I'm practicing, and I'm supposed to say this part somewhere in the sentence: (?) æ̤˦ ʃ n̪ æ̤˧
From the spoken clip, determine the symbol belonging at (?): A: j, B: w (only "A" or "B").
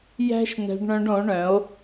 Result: A